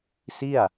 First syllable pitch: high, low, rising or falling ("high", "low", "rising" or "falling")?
falling